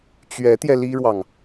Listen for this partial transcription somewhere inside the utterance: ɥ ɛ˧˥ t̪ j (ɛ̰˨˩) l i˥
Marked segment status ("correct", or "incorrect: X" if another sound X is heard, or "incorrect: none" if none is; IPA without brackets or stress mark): incorrect: ɛ˧